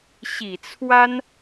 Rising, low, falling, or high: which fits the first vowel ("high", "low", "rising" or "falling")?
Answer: low